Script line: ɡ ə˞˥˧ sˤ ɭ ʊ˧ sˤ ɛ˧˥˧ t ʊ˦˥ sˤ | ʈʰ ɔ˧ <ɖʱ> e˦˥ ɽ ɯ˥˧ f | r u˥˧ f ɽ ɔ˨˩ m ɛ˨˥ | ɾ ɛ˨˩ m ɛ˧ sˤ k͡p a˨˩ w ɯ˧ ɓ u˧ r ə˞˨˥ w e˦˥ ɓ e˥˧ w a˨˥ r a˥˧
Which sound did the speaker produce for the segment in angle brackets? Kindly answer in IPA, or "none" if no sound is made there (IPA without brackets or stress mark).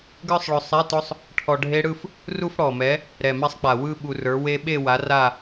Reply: ɖʱ